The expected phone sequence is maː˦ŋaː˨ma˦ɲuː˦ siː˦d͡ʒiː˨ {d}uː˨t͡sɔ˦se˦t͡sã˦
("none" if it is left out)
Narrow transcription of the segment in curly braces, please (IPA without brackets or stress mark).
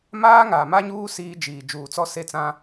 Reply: d͡ʒ